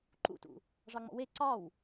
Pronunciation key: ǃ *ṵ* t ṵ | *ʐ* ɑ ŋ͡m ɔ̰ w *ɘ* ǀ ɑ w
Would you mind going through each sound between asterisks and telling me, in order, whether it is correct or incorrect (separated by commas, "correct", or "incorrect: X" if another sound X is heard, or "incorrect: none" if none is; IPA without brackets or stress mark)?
correct, correct, incorrect: e